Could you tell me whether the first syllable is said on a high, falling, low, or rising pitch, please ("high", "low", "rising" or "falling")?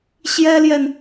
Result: high